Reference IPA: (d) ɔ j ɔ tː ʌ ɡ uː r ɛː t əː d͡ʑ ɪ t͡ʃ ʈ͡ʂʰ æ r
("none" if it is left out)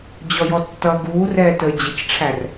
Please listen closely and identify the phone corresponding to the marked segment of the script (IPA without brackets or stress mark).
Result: d͡ʑ